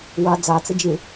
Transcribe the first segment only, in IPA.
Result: w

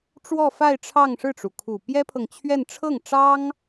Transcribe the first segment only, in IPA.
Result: ʈ͡ʂ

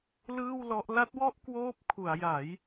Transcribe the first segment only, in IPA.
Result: l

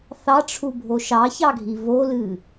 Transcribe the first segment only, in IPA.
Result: θ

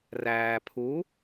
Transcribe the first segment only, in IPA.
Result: r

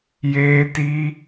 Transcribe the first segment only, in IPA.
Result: j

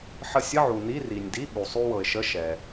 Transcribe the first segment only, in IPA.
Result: ħ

